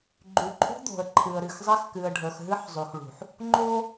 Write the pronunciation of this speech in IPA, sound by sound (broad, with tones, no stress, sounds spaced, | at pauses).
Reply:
ɡ͡ǃ y˨ ǃʼ ṳ˦ d̪ o̤˨ ə̯ ǃʰ ɨ˨ ə̯ ɾ ɨ˨ x zˤ ɛ˦ x k ɨ˨ ə̯ ɖʱ ə˞˨ x ɦ ɨ˦ ħ zˤ y˨ x ɭ ṳ˨ ħ | ŋ͡ǃ o˦